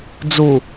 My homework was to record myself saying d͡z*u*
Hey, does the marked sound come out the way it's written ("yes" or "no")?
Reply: yes